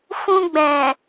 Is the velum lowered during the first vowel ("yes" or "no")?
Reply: yes